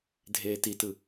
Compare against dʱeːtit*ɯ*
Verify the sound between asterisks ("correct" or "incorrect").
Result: correct